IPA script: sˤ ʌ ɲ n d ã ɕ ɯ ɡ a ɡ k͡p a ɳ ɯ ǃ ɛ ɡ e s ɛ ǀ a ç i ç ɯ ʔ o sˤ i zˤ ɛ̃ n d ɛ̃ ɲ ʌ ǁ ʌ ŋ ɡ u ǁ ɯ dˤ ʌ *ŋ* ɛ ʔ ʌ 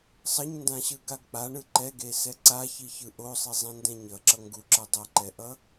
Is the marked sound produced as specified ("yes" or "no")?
no